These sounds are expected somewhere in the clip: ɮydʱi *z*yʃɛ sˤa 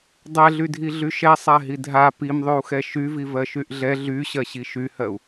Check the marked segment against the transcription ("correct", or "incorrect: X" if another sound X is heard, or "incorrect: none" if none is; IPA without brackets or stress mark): incorrect: ɮ